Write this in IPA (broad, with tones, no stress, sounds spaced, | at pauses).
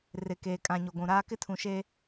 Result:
r ɪ˨ k eː˨ kʼ ã˨ ɲ o˨ ɡʷ ũ˨ ɾ aː˦ k ɪ˦ tʰ ũ˨ ʃ e˦